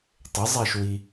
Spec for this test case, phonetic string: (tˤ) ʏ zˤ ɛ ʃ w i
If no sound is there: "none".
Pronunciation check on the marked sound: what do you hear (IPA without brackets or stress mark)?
tˤ